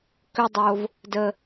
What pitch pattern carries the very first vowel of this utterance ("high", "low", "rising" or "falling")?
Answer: high